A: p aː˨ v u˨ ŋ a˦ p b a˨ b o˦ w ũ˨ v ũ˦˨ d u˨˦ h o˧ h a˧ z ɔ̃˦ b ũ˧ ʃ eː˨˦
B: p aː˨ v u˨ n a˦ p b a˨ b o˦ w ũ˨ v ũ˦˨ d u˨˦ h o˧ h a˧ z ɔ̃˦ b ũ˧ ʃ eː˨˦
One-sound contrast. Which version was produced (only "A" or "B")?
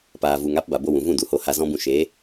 A